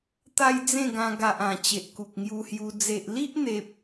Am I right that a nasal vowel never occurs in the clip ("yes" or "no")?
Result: no